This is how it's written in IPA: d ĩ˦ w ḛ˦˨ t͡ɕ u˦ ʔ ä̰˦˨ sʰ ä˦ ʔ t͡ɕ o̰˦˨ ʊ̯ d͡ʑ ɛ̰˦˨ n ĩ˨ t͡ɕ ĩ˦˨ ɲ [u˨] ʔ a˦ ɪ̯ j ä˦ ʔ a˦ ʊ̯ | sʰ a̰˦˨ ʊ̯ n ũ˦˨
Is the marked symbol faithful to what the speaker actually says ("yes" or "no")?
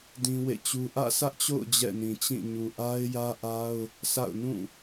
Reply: yes